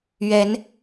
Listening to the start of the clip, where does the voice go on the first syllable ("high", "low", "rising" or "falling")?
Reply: rising